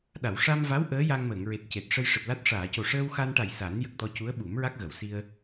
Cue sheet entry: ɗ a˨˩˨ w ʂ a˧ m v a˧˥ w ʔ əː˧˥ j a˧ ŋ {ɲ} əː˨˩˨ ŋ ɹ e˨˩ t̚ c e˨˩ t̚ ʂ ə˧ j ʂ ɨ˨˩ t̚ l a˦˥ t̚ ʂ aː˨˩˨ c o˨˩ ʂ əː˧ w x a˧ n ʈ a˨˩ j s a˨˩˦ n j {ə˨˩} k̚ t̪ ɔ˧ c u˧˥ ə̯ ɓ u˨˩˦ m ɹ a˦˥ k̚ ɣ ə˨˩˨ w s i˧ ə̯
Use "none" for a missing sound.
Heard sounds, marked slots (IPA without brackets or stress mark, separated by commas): m, ə˨˩